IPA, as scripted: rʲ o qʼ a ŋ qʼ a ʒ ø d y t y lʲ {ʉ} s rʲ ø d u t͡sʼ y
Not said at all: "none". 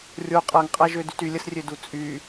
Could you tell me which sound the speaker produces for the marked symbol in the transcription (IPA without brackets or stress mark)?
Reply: ə